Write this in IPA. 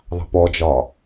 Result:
ðˤɑ̤pɔd͡ʒɒ

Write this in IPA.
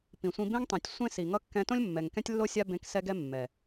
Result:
pĩ˨sʷĩ˧ bẽ˦ŋ tˤĩ˨tʲ sʷẽ˦si˨ŋʌ˦ kːɛ̃˧tõ˦lʲmːɛ˨ŋ kɛ̃˦tʲlːo˦ sʲa˧bẽ˨˦ksɛ˧ɡɛ˧ mːɛ˨

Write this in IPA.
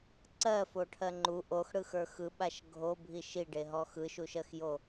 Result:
ǀɜfoʈʰɜ ŋ͡ǃu ʔoxɽɯxə˞ xɯɓaʃ ɡʱobʱi ʃiɖeɦɔ xɯʃuʃɜxjo

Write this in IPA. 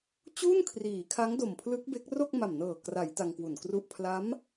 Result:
t͡ɕuː˥˩nkʰriː˩˦kʰa˦˥ŋdo˨˩m pʰlɯ˦˥k̚be˦˥k̚ ro˥˩k̚ma˨˩mnɤː˨˩ kra˩˦j ta˧ŋkwu˨˩nkru˥˩ʔ pʰla˦˥m

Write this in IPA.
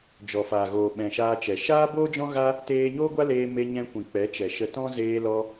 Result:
d͡ʒɔ˨faː˨ɣoː˨ ɓɛ̃˨ʃaː˧t͡ʃɛ˨ ʃaː˦boː˦d͡ʒɔ̃˦ɣa˦ | teː˧ɲoː˦ɡʷa˦leː˧ me˧ɲɛ̃˧kʷĩ˨ k͡pɛ˨˦t͡ʃɛ˨ʃə˧ tɔ̃˦ zeː˧lɔ˧

